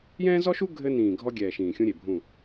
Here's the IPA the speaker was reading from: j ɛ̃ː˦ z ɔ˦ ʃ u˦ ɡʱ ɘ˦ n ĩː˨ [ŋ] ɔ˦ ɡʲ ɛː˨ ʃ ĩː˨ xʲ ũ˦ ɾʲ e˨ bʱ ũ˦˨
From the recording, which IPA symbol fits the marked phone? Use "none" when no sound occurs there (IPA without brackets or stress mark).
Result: ɡʱ